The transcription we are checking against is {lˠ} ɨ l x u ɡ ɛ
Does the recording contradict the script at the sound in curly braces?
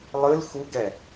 no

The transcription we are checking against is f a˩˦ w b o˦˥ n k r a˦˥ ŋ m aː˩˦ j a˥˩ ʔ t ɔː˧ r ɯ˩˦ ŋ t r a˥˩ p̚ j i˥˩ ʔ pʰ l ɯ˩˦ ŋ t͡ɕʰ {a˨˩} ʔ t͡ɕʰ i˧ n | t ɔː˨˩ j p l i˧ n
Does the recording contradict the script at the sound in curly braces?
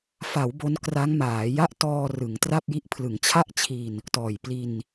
yes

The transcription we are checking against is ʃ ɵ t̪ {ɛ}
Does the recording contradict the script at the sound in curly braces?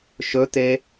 yes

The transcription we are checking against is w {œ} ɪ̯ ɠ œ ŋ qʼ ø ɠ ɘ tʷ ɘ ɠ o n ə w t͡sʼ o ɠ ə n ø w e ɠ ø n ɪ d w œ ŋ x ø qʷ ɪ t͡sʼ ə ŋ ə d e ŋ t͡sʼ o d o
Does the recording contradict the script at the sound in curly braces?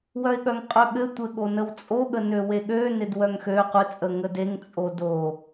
no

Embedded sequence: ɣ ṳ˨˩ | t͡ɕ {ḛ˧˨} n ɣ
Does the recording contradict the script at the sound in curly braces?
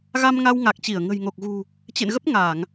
no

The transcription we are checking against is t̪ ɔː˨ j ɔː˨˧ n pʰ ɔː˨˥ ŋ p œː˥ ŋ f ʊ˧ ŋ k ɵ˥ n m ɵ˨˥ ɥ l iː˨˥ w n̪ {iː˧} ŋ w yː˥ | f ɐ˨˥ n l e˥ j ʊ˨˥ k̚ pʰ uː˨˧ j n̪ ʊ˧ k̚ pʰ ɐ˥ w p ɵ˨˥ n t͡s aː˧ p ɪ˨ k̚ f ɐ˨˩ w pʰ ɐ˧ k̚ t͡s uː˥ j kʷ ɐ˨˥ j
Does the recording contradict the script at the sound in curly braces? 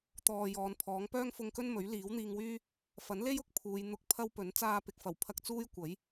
no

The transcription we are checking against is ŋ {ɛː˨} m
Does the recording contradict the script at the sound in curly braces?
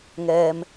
no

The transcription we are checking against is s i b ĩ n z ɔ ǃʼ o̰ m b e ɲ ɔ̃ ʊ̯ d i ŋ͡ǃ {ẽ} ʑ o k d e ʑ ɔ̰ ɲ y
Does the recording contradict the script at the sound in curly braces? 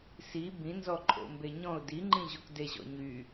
yes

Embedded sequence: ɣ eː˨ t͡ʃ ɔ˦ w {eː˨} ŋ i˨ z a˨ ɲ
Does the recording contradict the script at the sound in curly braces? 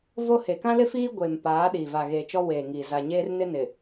no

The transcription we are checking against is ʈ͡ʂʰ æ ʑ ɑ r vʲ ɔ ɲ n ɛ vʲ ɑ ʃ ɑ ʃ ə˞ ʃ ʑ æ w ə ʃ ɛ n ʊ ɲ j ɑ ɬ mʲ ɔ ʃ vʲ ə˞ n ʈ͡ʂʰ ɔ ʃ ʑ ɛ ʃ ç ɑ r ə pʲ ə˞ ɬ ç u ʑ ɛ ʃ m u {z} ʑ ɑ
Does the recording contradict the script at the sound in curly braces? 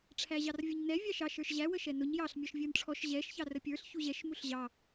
yes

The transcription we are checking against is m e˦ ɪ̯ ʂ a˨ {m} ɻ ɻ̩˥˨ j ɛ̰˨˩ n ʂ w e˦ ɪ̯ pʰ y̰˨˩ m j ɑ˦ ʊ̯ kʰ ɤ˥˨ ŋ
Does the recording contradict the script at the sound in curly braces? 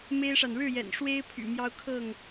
yes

